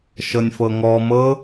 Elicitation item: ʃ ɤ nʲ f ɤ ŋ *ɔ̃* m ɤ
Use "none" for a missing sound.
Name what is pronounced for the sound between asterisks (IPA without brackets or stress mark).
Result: ɔ